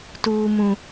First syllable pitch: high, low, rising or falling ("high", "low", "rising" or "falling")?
low